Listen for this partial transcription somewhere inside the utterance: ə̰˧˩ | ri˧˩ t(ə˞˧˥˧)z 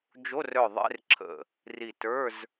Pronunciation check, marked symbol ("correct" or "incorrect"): correct